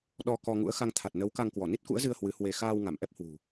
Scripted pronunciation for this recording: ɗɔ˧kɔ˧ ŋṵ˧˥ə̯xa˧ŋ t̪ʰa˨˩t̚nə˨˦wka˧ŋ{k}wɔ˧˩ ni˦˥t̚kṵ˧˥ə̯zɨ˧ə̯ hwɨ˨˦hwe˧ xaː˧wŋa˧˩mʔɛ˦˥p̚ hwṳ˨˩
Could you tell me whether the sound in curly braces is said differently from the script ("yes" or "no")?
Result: no